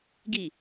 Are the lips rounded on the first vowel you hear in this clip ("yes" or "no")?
no